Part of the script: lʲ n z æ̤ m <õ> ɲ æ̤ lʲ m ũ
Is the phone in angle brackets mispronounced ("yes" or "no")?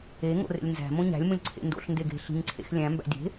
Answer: no